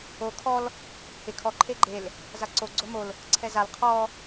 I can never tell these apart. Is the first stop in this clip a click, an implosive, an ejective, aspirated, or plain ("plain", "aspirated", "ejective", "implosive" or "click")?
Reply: aspirated